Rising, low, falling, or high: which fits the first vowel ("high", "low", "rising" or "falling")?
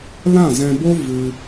falling